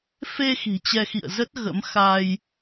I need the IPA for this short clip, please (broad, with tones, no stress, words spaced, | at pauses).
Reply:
fe˧ xi̤˨˩t͡ɕɛ˧xḭ˧˨ə̯ zə˦˥t̚ ɣə̰˧˥mxa˧j